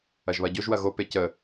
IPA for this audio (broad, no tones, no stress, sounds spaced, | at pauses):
ɐ ʒ β ɐ ɟ o ʒ w ɐ ɣ o p e c ə